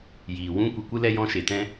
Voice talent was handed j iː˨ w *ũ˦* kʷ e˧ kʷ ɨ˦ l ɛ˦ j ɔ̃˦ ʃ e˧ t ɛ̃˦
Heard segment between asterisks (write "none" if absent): ũ˦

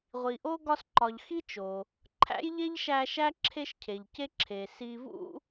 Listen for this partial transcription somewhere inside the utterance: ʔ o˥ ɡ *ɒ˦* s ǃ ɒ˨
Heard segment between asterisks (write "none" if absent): ɒ˦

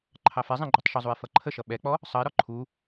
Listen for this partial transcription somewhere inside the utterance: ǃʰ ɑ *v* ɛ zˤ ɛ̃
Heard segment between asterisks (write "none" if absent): f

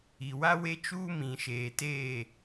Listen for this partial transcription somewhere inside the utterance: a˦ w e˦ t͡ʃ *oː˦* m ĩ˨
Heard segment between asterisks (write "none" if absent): uː˦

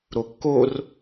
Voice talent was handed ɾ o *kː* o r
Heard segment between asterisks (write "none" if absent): kː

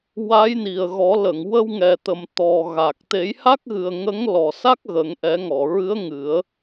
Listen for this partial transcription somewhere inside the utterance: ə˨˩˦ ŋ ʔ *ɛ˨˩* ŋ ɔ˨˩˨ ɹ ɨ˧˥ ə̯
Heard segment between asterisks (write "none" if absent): ɛ˨˩˦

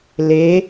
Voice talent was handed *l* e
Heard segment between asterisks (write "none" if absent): l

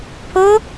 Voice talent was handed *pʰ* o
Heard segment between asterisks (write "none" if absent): pʰ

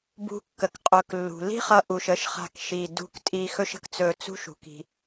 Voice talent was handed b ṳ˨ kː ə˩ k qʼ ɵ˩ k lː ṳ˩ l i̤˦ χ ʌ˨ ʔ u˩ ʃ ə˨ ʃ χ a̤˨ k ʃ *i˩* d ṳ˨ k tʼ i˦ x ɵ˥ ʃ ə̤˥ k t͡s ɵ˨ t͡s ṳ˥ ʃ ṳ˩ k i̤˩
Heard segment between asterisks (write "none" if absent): i˩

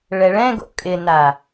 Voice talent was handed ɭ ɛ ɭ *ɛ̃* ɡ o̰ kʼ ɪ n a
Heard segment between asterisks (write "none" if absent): ɛ̃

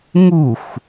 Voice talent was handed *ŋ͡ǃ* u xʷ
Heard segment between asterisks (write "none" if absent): ŋ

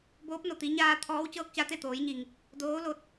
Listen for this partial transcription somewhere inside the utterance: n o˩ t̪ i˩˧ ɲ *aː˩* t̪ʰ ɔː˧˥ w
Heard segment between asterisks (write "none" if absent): aː˧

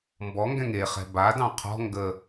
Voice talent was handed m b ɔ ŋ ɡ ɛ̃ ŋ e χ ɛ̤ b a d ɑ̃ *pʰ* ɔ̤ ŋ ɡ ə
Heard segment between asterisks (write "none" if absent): qʰ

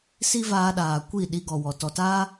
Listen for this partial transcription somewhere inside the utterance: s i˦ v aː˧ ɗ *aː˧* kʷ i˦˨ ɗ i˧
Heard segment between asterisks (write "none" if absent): aː˨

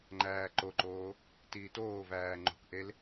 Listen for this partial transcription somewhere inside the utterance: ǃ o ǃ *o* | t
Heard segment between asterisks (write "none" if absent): oː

